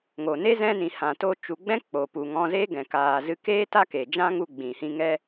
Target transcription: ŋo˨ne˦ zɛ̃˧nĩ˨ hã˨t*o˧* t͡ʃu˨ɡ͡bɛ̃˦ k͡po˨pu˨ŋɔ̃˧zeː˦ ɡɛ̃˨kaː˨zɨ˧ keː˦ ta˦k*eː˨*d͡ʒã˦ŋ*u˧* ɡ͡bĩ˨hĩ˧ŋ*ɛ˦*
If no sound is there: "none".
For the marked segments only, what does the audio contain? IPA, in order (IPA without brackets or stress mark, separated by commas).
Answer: o˧, eː˨, u˧, ɛ˦